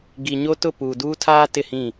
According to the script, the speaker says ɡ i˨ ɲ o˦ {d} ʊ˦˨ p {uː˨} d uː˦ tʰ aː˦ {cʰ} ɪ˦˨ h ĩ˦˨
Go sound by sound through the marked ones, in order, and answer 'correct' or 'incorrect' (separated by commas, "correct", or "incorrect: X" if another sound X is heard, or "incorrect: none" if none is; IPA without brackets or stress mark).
incorrect: t, correct, incorrect: t